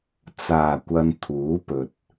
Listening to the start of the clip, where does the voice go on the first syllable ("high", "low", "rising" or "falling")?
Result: low